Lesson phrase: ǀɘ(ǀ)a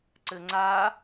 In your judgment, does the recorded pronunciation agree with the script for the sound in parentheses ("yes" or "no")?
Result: no